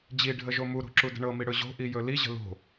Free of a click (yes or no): no